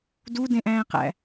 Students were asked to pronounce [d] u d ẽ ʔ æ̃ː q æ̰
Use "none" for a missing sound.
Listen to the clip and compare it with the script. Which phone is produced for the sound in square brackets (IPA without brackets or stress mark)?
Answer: d